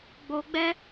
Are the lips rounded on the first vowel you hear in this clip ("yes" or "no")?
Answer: yes